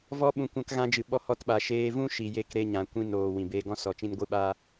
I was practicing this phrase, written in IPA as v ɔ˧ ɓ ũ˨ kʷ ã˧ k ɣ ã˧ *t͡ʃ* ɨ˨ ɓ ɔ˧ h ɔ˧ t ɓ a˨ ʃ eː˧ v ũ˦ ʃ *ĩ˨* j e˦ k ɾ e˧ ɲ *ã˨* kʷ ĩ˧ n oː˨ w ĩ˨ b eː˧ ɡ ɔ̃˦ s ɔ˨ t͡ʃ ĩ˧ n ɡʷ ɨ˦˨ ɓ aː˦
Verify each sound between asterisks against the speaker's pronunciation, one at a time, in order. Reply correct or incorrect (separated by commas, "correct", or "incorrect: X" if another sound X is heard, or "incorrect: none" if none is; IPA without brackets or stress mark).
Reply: incorrect: d͡ʒ, incorrect: i˨, correct